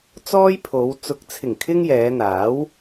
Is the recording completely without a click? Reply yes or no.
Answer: yes